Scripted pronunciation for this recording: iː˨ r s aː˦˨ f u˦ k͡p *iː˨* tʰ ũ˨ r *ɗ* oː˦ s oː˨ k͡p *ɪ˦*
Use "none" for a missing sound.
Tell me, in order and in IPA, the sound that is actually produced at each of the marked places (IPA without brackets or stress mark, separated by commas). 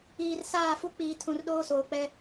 iː˨, ɗ, ɛ˦